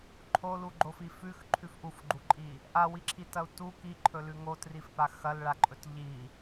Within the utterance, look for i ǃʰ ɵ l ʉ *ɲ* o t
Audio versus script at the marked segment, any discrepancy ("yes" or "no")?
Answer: yes